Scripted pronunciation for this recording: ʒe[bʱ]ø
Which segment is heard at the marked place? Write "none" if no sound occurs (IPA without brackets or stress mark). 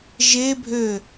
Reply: bʱ